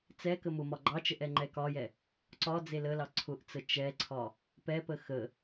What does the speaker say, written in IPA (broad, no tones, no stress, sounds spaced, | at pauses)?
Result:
t͡s ɛ k ə m ʊ m ɒ ɡ͡ǃ ɑ t͡ʃ ə ʔ ɛ ŋ͡ǃ ɛ k ɒ j ɛ | ǀ ɒ d͡z e l ə l ɑ ǀʰ ʊ ʔ t͡s ə t͡ʃ ɛ ǀʰ ɒ | p ɛ p ə x ə